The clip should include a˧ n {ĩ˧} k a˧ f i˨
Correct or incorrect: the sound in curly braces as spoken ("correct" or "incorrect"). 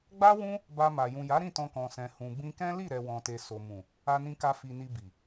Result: correct